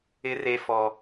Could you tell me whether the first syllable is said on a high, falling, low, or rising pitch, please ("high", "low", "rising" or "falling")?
high